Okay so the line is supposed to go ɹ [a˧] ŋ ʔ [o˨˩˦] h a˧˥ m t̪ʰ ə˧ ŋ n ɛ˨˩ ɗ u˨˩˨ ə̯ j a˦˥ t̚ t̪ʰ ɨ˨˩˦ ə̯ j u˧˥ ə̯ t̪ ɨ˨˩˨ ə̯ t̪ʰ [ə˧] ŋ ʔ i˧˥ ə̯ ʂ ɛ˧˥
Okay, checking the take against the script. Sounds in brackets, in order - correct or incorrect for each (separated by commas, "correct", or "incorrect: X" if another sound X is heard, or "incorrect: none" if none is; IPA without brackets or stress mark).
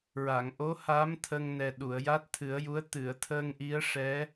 incorrect: a˨˩˨, incorrect: o˧˥, incorrect: əː˧